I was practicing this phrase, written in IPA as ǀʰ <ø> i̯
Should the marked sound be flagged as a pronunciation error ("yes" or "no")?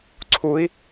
yes